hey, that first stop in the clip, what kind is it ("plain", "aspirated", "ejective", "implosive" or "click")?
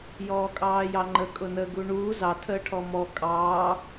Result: ejective